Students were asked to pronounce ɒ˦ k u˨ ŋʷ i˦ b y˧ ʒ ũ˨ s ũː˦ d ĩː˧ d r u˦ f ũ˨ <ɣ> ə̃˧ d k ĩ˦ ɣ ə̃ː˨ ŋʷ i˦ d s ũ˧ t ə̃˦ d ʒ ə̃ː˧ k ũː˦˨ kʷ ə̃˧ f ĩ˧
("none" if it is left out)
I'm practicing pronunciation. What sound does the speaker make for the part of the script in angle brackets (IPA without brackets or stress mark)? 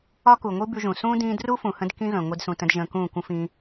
h